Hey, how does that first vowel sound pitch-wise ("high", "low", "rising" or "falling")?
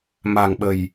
low